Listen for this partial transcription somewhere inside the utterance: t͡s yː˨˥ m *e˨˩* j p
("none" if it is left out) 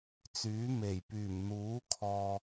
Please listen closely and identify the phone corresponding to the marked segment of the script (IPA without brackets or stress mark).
e˨˩